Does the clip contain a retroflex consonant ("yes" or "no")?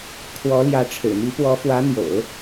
yes